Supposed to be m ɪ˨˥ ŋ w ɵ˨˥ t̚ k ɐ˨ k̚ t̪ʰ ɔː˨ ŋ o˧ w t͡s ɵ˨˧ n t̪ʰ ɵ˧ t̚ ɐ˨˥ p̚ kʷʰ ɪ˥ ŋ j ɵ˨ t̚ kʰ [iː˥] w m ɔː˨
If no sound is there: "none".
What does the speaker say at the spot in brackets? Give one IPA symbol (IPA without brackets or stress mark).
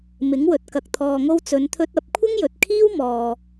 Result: iː˥